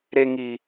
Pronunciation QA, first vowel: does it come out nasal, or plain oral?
oral